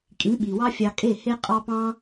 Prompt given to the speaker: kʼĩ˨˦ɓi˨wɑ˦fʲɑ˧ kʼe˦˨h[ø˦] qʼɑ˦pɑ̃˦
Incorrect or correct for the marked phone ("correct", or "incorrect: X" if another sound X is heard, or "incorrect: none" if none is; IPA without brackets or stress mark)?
incorrect: e˦